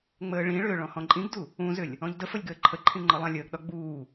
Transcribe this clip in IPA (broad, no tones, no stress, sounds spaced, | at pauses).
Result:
ŋ͡m əː ɭ ĩ ɭ ʏː ɭ ɔ̃ h ɔ̃ ǃʼ ĩ ɡ d u | ũ z ʏ lʲ | ɔ̃ ʎ d ə f ə lʲ ɡ əː ǃʰ ə ǃʰ ĩ ŋ͡ǃ ɒ lˠ ã lʲ əː ɡ ɗ ɒ ɡ͡b uː